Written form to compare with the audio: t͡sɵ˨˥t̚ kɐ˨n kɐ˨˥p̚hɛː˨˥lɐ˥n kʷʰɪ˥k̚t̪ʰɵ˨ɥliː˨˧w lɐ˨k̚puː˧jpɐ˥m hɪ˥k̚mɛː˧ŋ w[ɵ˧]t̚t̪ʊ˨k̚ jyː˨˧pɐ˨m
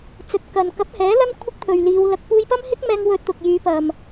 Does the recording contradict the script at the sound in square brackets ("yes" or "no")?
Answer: no